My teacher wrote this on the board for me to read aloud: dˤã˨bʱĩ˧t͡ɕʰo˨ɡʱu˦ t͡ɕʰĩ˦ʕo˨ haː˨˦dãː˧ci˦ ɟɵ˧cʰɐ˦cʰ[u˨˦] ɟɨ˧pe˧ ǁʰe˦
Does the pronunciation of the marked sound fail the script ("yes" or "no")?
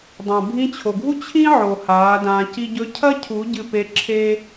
no